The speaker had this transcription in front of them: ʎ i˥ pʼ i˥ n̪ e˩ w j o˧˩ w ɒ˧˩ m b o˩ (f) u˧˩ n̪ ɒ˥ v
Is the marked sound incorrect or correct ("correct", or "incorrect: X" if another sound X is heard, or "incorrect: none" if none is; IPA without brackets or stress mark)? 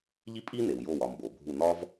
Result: incorrect: bʱ